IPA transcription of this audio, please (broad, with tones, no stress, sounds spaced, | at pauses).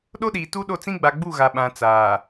ɗ o˦ ɗ iː˨ t u˦ ɗ o˦˨ t͡s ĩ˦ ɡ͡b a˨ ɡ͡b u˦˨ ɣ a˨ ɓ ã˨ t͡s aː˨